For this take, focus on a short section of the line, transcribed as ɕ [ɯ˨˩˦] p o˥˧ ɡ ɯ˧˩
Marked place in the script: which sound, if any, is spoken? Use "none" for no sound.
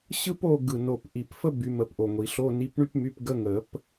ɯ˥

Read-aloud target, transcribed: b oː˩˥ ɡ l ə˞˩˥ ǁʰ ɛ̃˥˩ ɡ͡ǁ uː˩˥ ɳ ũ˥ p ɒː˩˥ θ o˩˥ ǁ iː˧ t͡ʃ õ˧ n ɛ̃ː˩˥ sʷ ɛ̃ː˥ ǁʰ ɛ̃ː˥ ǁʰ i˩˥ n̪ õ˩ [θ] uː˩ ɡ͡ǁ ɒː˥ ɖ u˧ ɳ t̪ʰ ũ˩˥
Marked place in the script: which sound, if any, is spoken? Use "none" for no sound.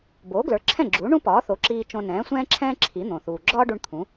θ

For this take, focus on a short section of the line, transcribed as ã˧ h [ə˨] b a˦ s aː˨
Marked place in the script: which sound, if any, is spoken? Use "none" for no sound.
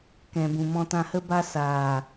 ə˦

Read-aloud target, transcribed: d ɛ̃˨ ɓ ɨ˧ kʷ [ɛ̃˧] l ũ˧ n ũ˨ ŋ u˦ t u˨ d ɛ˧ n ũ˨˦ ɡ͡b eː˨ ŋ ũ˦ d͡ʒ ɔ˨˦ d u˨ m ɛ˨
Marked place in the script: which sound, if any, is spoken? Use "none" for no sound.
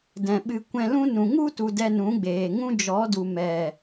ɛ̃˧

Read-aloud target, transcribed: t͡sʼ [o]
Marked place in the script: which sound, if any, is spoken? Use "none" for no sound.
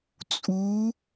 u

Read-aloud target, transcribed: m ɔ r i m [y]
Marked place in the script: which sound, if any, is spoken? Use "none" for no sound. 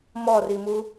u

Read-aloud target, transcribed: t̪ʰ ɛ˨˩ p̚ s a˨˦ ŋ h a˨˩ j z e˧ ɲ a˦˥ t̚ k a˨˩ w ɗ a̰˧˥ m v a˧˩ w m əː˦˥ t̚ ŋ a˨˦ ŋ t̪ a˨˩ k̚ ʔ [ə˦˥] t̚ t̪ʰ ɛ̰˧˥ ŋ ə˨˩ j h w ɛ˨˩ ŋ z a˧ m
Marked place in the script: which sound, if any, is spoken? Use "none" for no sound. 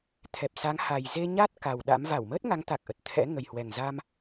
ə˨˩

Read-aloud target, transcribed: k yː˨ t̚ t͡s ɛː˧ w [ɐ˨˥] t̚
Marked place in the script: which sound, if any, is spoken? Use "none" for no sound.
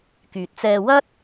ɐ˥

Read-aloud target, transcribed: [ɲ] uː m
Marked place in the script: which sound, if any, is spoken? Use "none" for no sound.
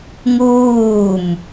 ŋ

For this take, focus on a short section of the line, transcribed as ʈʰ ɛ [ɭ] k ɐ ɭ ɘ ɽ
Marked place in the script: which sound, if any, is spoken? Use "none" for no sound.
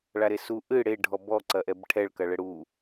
ɭ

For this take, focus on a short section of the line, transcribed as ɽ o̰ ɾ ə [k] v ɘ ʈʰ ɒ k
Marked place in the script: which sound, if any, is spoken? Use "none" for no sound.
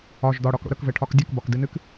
k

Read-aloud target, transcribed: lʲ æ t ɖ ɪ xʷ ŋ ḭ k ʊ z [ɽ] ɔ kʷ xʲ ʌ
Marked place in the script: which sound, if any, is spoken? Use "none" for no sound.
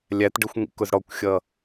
ɽ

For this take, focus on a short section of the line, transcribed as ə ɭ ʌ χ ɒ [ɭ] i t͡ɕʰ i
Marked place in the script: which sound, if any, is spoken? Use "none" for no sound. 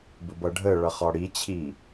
ɽ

